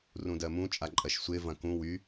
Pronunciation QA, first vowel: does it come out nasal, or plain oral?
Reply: nasal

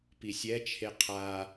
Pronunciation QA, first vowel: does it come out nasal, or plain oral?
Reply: oral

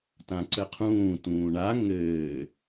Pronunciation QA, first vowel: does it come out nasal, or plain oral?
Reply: nasal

